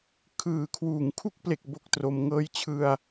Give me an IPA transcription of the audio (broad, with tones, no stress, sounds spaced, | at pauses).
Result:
kʰ ɯː˨˩ kʰ w uː˨˩ ŋ kʰ u˥˩ k̚ p l e˨˩ k̚ b o˦˥ k̚ t r o˧ m ŋ ɤː˧ j t͡ɕʰ ɯ˧ a̯